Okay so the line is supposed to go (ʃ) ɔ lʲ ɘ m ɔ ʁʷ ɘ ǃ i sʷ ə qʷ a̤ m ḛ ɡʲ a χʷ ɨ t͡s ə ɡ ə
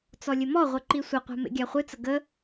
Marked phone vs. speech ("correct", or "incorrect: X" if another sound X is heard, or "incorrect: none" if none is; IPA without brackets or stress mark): incorrect: t͡s